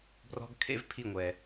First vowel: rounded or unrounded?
rounded